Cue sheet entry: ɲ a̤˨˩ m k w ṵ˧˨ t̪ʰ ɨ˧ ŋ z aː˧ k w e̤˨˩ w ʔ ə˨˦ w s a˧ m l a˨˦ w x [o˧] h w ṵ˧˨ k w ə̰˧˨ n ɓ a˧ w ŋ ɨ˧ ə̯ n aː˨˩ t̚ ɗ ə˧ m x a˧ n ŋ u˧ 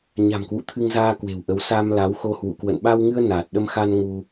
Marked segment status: correct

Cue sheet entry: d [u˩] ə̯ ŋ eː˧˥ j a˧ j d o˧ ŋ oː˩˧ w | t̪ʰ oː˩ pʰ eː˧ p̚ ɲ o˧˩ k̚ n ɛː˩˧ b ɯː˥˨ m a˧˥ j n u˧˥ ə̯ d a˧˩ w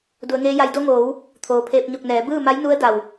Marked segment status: incorrect: u˩˧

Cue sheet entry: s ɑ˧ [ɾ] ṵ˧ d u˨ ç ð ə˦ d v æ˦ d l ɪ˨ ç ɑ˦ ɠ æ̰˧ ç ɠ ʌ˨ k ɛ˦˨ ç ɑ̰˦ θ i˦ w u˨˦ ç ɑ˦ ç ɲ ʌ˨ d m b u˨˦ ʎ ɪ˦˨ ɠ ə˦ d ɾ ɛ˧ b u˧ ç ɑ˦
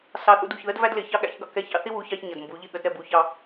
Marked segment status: incorrect: θ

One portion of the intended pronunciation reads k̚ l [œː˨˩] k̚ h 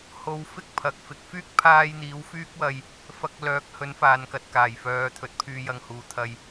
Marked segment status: incorrect: œː˨˥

